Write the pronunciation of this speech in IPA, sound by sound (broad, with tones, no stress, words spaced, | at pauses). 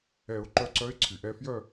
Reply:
ɛ˨˩˦ʊ̯ǃœ˧ǀœ˧˥ɪ̯ ǀʰy˩ʔɛ˧fjœ˥˧